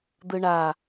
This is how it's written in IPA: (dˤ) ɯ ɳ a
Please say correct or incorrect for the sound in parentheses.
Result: incorrect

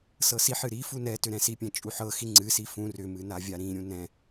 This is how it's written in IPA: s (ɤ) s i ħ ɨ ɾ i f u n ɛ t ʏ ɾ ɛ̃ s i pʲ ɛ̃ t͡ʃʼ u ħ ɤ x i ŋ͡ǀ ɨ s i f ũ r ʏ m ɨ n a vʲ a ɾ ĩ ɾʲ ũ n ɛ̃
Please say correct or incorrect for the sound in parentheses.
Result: correct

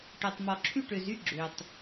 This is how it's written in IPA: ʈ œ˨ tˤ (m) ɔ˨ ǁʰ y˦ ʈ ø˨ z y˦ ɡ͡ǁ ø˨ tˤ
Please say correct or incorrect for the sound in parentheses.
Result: correct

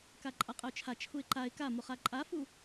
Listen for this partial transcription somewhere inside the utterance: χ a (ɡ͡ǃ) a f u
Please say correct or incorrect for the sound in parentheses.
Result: incorrect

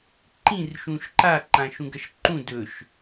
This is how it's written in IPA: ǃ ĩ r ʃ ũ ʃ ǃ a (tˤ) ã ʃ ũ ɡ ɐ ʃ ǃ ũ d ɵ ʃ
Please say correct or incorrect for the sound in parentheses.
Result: incorrect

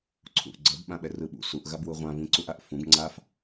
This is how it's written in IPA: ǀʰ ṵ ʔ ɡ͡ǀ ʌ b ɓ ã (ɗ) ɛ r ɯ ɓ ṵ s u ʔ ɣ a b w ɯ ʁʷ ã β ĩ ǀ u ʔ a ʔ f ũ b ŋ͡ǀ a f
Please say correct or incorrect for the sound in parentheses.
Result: incorrect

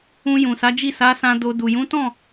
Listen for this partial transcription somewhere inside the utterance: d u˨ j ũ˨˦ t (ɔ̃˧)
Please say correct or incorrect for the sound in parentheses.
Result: incorrect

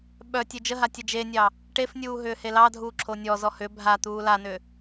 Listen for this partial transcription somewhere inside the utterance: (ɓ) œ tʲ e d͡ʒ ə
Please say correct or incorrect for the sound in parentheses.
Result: correct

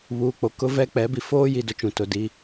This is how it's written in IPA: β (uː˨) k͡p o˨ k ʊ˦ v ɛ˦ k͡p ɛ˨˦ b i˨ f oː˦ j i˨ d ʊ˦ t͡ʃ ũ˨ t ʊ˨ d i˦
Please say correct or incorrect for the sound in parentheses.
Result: correct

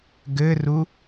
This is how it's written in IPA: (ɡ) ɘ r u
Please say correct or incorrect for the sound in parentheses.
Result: correct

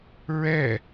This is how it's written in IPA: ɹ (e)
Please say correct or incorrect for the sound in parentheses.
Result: incorrect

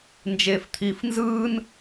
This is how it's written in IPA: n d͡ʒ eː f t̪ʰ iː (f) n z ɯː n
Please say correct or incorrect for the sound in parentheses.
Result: correct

